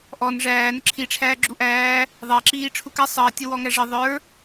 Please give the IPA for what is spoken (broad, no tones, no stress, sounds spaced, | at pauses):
ʔ ɔ n ʐ æː n ə ǁʰ i ʈ͡ʂʰ æː ɡ͡ǁ u ʔ æː | ðˤ æ ǁ iː ʈ͡ʂʰ u k æ sˤ əː tʲ ə w ɔ ŋ æ ʐ ə ðˤ ə˞